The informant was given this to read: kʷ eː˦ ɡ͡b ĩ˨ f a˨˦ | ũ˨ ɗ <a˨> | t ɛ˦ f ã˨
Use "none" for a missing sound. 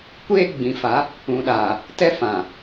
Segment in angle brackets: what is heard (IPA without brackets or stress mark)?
aː˨